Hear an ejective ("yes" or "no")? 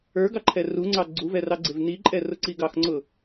yes